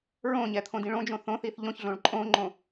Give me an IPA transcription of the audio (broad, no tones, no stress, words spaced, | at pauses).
ɹõɲɛt̪ʰõdĩ ɭõd͡ʒõ θõθiθ ʎõçɮõɭ ǃʼõŋ͡ǃõ